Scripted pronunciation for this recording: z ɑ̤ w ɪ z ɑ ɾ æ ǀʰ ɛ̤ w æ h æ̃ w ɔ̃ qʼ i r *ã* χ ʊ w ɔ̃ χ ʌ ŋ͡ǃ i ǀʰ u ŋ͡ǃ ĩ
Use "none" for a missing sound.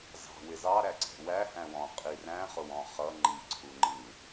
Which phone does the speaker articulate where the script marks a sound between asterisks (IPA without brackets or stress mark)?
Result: æ̃